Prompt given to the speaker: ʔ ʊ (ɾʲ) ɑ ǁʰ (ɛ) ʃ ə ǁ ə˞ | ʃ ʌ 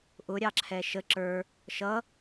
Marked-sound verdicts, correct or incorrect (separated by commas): correct, correct